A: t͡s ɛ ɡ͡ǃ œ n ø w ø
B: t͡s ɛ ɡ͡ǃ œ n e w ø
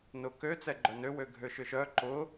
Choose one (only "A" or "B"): A